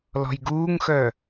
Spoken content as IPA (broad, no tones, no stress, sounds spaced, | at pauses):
l ɔ̤ j ɡ uː ŋ x œ